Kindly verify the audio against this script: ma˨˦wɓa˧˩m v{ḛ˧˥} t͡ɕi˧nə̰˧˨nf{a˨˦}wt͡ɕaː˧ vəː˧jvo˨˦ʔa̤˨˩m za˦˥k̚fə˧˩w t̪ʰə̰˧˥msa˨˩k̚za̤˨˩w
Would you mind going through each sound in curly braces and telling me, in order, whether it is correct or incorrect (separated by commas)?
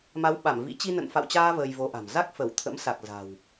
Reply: incorrect, incorrect